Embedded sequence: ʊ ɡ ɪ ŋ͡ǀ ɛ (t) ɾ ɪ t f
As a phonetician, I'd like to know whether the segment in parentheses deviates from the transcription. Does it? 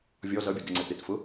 no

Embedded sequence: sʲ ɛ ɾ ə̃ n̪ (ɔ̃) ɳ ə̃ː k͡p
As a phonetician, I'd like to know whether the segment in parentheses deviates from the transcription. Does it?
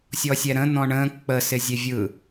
no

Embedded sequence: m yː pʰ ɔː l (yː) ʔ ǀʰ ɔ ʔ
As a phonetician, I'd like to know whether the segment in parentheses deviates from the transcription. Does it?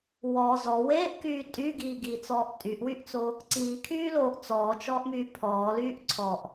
no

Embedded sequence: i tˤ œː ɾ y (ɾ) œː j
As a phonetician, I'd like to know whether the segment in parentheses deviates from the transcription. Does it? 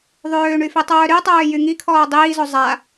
yes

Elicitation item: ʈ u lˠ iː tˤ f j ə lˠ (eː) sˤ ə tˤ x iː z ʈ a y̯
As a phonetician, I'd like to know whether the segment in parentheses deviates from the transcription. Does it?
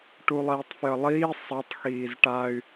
yes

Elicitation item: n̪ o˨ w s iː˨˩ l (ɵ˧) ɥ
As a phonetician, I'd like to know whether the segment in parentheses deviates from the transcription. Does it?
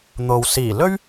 yes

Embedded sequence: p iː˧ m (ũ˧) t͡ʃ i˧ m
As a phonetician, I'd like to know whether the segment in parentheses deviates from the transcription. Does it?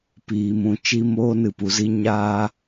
no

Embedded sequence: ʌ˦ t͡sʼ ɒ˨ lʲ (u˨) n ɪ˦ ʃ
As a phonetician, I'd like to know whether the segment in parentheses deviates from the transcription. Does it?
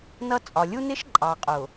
yes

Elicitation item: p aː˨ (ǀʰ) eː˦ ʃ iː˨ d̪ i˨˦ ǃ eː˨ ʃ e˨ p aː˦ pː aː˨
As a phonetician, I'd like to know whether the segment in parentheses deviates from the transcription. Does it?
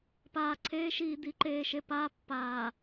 no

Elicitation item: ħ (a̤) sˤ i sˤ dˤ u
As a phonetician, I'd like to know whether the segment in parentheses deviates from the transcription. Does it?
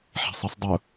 no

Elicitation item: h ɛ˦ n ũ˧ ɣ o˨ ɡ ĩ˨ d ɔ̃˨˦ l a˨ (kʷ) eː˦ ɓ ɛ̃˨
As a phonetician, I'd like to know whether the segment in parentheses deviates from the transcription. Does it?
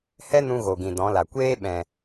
no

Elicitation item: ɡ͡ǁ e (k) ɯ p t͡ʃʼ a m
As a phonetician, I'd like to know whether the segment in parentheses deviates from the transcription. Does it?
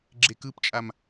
no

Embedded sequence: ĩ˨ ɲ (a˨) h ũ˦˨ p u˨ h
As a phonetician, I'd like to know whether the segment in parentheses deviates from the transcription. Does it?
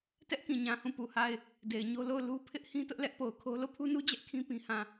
yes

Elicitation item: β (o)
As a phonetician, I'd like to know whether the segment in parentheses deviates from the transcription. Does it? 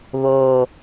no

